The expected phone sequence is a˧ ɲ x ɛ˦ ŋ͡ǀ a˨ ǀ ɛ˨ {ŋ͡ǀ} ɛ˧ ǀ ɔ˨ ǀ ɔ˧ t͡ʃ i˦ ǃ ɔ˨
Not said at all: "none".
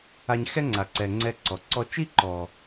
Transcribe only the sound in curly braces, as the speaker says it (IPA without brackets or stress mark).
ŋ͡ǀ